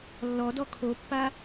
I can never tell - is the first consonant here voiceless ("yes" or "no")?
no